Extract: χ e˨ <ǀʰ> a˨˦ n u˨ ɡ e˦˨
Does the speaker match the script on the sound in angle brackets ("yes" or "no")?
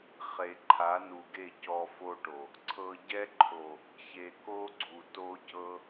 no